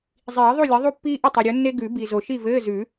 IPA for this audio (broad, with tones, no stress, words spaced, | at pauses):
zˤiː˨˩˦ðˤu˥˨lʲɘ˨˥ ðˤu˥˨pːiː˥ʔə˥˨ tˤi˨ɾʲo˨˥nːe˥ ɡʉ˨˩˦bi˨ zo˨ʃi˥˨vɘː˧˥˧ zʉ˨˩˦